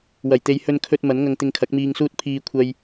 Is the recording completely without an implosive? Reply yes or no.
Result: yes